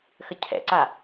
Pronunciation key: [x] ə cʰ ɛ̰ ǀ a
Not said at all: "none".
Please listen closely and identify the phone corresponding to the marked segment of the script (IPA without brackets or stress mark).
x